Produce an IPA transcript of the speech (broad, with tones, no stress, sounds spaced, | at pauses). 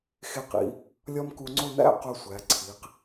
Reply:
x e˧ q ḭ˩˧ | lʲ ɒ˥ m k u˧ ŋ͡ǀ o˥˧ n æ̰˥˧ q o˧ sʷ æ˩˧ ǀʰ i˩˧ q